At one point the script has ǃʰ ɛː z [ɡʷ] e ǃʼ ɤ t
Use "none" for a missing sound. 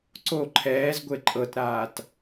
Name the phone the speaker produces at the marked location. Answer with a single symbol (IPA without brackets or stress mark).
ɡʷ